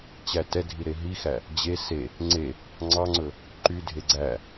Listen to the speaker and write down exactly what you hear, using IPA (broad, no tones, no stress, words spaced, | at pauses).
t͡ɕætɛdʱi ɾeɦixæ | d͡ʑe se | ŋ͡ǀe | ŋ͡ǀɑŋ͡ǀɵ | ǃydʱe ɡ͡ǀæ